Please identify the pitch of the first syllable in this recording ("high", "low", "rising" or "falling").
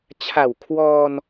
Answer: low